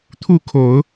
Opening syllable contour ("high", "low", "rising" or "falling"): falling